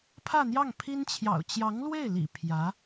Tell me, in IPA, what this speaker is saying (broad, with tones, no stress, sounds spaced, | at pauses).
pʰ ä˥˧ n̪ j ɑ˥˩ ŋ pʰ i˥ n t͡ɕʰ j ɑ̰˨˩ ʊ̯ t͡ɕ j ɑ˧˥ ŋ l w e˥˩ ɪ̯ l ḭ˨˩ pʰ j ä˧˥